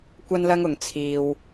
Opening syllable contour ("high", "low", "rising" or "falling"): high